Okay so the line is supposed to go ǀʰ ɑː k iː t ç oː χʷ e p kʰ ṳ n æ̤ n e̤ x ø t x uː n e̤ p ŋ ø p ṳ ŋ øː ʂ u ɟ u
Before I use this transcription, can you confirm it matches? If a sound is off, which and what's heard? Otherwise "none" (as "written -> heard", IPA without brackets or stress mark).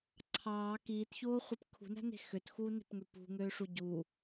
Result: none